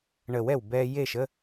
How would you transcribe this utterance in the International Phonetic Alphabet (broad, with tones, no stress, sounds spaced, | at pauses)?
ɳ əː˨˩˦ w ɛ˨˩ w b ɛː˧ j e˥˨ ʃ ə˧˥˧